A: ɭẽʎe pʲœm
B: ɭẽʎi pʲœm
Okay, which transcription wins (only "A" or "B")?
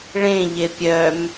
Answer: A